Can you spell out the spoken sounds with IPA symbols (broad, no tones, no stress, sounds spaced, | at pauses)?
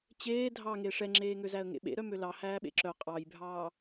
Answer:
t͡ɕ eː dʱ ɑ ŋ e ʂ ɛ ŋ͡ǁ eː ŋ ø z æ ə̯ ŋ ḛ ɓ ḛ ɾ œ m ø l ɑ h æː ɓ ḛ ǁ œ qʼ ɑ j bʱ ɑː